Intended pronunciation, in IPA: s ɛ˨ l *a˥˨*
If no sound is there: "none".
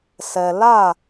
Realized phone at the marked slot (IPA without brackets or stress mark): a˥˨